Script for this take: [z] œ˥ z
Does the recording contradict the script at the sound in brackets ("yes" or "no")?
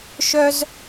yes